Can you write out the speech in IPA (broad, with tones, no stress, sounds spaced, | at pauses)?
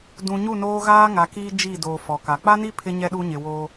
d ũ˨ ɲ u˦˨ n oː˦ ɣ aː˦ ŋ a˨ k iː˦ d͡ʒ i˦˨ d oː˨ f ɔ˨ k a˨ k͡p a˦ n i˦ pʰ ɪ˦ ɲ ɛ˦ ɗ u˦ ɲ ɪ˨ w oː˦